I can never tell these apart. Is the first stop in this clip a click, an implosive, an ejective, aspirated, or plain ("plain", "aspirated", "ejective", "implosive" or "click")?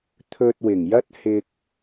aspirated